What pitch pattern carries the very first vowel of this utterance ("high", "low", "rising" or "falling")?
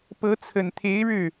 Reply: rising